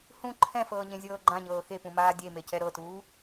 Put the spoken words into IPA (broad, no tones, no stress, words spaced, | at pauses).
hũ ǃʰɛ̃fɤːɲẽzʲɤː ɡ͡ǃãɲɤː xepũmaː dʲemecɛ ɾɤtuː